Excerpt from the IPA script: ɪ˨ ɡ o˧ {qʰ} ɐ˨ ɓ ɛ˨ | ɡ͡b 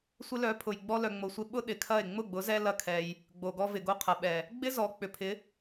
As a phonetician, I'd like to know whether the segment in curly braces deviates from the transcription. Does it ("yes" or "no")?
no